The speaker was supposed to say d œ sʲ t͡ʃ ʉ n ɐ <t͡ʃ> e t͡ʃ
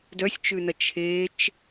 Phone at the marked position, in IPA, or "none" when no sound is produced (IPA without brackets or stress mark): t͡ʃʰ